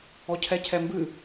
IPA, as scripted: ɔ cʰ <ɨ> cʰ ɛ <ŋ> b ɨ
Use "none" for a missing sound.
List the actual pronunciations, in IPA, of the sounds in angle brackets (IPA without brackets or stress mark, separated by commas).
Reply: ɛ, m